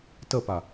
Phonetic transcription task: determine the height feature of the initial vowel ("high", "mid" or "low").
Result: mid